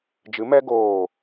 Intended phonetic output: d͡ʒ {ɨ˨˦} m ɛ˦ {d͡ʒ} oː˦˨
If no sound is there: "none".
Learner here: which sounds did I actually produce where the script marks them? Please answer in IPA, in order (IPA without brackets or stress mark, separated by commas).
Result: ɨ˨˦, ɡ